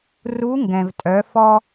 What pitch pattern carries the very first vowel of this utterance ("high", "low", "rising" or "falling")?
rising